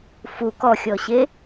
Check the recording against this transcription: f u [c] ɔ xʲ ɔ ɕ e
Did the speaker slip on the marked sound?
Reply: yes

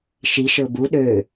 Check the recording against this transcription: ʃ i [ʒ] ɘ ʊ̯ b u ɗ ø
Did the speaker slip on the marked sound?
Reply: yes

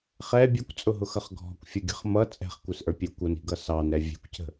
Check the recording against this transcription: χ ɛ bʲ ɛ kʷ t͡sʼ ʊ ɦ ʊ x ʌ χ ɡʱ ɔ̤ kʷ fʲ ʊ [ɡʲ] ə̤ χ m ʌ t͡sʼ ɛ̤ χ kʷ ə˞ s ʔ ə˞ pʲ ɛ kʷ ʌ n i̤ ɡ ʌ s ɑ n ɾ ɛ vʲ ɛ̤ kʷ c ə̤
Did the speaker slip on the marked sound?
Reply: no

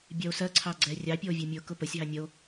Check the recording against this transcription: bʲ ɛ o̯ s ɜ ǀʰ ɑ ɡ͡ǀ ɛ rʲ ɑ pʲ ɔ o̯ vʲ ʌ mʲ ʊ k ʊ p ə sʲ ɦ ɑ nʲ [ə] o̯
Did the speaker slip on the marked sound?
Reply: no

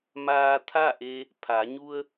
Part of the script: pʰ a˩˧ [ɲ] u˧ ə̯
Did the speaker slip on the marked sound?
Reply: no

